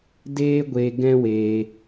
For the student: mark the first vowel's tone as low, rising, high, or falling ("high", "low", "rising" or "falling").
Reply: high